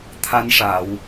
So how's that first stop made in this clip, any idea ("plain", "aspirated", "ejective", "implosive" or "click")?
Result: aspirated